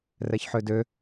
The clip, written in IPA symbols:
rɛçħødø

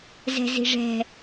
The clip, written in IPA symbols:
zɛ̤zi̤ʐɛ̤

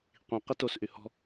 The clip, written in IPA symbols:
qʷĩ qitosʔy hɔ̤

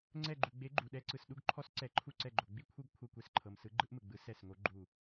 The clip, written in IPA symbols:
ŋ͡ǀɛ˧˩ɡ͡ǃu˩ɡ͡be˨˦ ɡ͡ǃu˩ɗɛ˨˦ǀɯ˩s ɗu˧˩ɡǃʰɔ˨˦s ǀɛ˨˦ ǃʰu˧˩ǀɛ˧˩ɡ͡ǃo˩ ɡ͡bi˧˩kʷʰɯ˧˩ɡ kʷʰɤ˧˩kʷe˧˩sǃʰɤ˩m sɯ˨˦ɡ͡ǃɯ˨˦ʔmɯ˩ɡ͡bɯ˨˦ sɛ˧˩sŋo˨˦ɡ͡ǃu˧˩

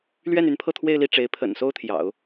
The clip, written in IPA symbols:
lɥɛ˥˩ny˧˥n pʰɤ˥˧t̪ʰwe˥˧ɪ̯ li˥˩ʈ͡ʂe˧˥ɪ̯ pʰə̰˨˩n so˥ʊ̯t̪ʰjɑ̰˨˩˦ʊ̯

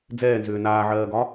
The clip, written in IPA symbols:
d͡zɛːnzʏː naːʕɜːɡɒ

